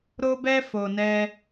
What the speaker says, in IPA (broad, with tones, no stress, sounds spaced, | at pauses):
ɾ o˧ b ɛ˧ f o˨ n ɛ˧